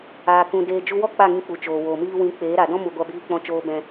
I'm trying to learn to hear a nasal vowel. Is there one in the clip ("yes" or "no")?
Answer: yes